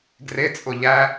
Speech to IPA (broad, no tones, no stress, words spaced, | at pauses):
ɡrɪt͡sʼʊ ʎæ